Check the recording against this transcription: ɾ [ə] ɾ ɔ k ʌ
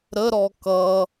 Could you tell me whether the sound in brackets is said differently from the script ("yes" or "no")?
no